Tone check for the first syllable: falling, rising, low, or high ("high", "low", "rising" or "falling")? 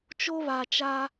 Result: high